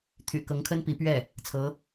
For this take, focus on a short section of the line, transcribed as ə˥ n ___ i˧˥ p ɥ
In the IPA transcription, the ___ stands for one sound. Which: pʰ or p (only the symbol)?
p